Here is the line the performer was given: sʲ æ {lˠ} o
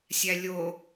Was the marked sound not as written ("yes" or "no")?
yes